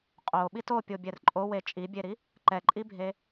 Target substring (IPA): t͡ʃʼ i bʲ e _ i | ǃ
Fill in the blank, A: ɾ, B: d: A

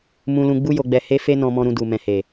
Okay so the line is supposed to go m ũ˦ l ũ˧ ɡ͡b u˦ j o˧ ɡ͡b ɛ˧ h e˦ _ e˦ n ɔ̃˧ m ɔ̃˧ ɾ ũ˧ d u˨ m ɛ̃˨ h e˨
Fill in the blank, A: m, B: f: B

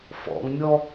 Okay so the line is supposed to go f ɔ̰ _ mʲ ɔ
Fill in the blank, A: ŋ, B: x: A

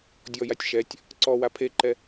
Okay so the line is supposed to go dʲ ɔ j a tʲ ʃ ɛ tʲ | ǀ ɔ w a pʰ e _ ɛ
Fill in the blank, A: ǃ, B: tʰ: A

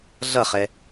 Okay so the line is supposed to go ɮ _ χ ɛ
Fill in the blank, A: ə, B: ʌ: B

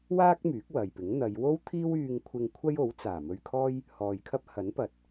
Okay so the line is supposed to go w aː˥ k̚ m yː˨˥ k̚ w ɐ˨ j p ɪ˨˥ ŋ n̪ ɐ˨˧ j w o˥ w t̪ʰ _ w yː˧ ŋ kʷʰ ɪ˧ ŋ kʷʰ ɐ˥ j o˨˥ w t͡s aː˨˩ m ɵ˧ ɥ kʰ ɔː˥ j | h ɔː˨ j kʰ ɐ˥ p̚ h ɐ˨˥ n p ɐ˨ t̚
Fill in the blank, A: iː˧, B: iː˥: B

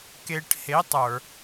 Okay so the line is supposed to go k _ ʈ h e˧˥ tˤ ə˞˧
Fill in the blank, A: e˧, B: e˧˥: A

